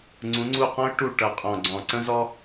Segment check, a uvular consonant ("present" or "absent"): present